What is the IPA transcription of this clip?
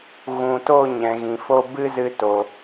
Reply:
ɣ ũ˨ t o˦˨ ɲ ɛ̃˨ ɣ ĩ˨ f o˦ b ɨ˦ z ɨ˧ t o˨

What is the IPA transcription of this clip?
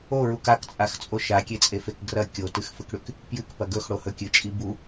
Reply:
o ɹ u k a k t͡sʼ a x t͡sʼ o ʃ a kʲ e t͡sʼ e f e k ɡ r ɐ kʲ o t ɨ x f ɨ k ɽ ʉ k | p j ɨ k p ɐ ɡ ɵ x ɽ o h ɵ kʲ ɨ t͡ʃʼ i b u

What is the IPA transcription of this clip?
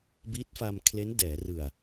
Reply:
b i˦˥ t̚ f a˧ m kʰ l e˦˥ n d ɛː˩˦ r ɯ˨˩ a̯

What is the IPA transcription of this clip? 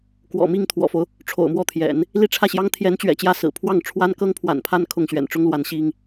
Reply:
k w ɔ̰˨˩ m i˥˩ ŋ t̪ʰ w ɔ̰˨˩ f o˦ ʊ̯ | ʈ͡ʂʰ o̰˨˩ ʊ̯ m w ɔ˥˩ t̪ʰ j ɛ̰˨˩˦ n | l i˥˧ ʈ͡ʂʰ ä˥˩ ɕ j ɑ˥ ŋ t̪ʰ j ɛ˧˥ n t͡ɕ ɥ ɛ̰˨˩ t͡ɕ j ä˥˩ s ɹ̩˨˩ pʰ w ɑ˥˩ ŋ ʈ͡ʂʰ w a˥ n k ɤ˥ ŋ pʰ w a̰˨˩ n pʰ a˥˧ n kʰ ʊ˥˩ ŋ ɕ ɥ ɛ̰˨˩ n ʈ͡ʂ ʊ˥ ŋ l w a˧˥ n ɕ i˥ ŋ

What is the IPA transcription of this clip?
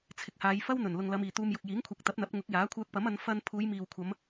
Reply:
t͡sʰ ɪ˨ k̚ h aː˨˧ j f ɐ˥ w n̪ ɵ˨˩ n l ʊ˨ ŋ l ɐ˨˧ m iː˨˩ t̪ uː˧ m j ʊ˨ k̚ j iː˨˥ ŋ kʷʰ ɐ˨ k̚ t̪ ɐ˨˥ p̚ n̪ ɐ˨˥ p̚ ŋ ʊ˨˥ k̚ j aː˨˥ kʷʰ œː˧ k̚ p ɐ˨˥ m ɐ˨˧ n f ɐ˧ n pʰ uː˨˧ j m iː˨ w kʷʰ ɐ˨˧ m

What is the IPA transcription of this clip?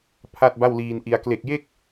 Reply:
pʰ a˥˩ t̚ b a˥˩ w l iː˧ n ʔ i˧ a̯ k l e˨˩ k̚ j e˥˩ k̚

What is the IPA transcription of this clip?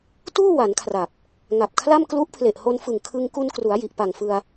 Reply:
t uː˥˩ w a˩˦ n kʰ r a˨˩ p̚ | ŋ a˨˩ p̚ kʰ l a˥˩ m k l u˦˥ ʔ pʰ l e˨˩ ʔ h o˧ n f ɯ˨˩ ŋ kʰ ɯ˧ ŋ k u˧ n k r u˩˦ a̯ j i˨˩ ʔ p a˨˩ ŋ f ɯ˧ a̯

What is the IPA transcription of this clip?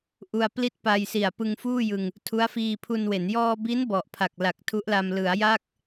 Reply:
ʔ u˧ a̯ p l i˥˩ t̚ p a˧ j s i˨˩ a̯ p ɯ˧ ŋ f uː˥˩ j ɯ˧ ŋ | tʰ u˦˥ a̯ f iː˧ pʰ u˧ n w e˩˦ n j ɔː˧ b i˦˥ n b ɔ˨˩ ʔ pʰ a˨˩ k̚ l a˨˩ k̚ tʰ u˦˥ ʔ l a˧ m l ɯ˩˦ a̯ j a˥˩ k̚

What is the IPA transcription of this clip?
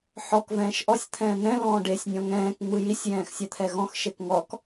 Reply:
ħ ɔ k v ɛ̃ː ʃ ʔ ɔ sʲ t̪ʰ ɛ̃ː n̪ ɛ̃ l ɔ̃ː ɖ e sʲ nʲ ɔ̃ ŋ ɛ̃ː k ŋ͡m ɯ j i sʲ j ɛ̃ː x sʲ a t̪ʰ ɛ ɣ ɔ̃ x ʃ e k ŋ ɔ k

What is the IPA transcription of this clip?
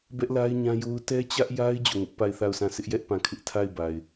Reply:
b ɛ˦ ʔ l a˦ ɪ̯ ɲ ã˦ j o˦ ʊ̯ t ɛ˦ t͡ɕ ä˦ ʔ j a˦ ɪ̯ d͡ʑ o˦˨ ŋ ʊ˦ ʔ p a˦˨ ɪ̯ θ a˦˨ ʊ̯ s ã˦˨ s ɪ˦ ʔ j ɛ˦ ʔ p ã˦˨ kʰ ɪ˦ ʔ tʰ a˦˨ ɪ̯ b a˨ ɪ̯

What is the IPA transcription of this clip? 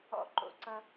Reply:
ɔ̰˦˨ ǃ o̰˧˩˧ ǀ ʌ˦

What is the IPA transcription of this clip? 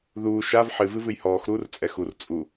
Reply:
ð uː ʃ a v ħ ɨ v ɨ v ɨ j h ɔː x ɾ uː r t͡sʼ ɛ x u r t͡sʼ u

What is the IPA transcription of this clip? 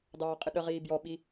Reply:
d ɑː qʼ ɪ ɗ ə ʁ iː b j ɔ ɓ i

